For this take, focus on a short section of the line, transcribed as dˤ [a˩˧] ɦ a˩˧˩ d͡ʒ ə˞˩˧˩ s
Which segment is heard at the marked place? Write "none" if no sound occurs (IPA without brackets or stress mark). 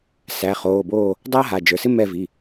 a˥